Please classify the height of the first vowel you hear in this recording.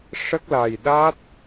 mid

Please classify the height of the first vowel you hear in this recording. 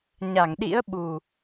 low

